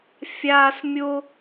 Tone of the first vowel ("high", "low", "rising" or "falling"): high